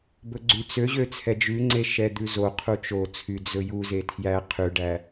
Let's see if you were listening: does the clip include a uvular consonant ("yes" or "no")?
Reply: yes